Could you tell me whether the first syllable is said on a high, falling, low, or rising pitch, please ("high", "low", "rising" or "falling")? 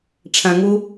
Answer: low